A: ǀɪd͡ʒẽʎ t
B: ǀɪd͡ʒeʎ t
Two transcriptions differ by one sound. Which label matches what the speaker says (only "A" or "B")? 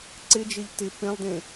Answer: B